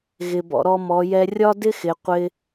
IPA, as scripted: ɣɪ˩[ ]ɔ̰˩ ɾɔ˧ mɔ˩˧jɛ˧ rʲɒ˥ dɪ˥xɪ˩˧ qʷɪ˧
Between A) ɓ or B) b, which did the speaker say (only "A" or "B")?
B